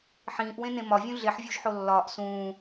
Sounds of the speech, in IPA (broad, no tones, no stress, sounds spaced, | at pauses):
ħ ĩː ʔ w ẽ n ẽ m ɒ vʲ ũ ɮ e ħ vʲ u ʒ ħ o lː ɒː ʔ s ũː